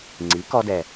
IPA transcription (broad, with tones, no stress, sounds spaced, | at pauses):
ŋ͡ǀ i˩˥ k ɔ˧ d ɛ˨˩